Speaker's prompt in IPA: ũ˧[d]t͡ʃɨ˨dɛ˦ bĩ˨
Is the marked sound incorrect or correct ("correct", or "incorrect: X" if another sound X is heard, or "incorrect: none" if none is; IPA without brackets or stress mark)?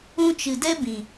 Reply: incorrect: none